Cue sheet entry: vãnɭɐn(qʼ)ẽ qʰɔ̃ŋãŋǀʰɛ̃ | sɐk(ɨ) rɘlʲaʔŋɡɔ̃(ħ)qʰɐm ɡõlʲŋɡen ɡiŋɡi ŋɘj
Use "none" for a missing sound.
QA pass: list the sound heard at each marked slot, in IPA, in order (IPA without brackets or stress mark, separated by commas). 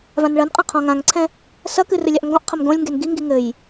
qʼ, ɨ, ʔ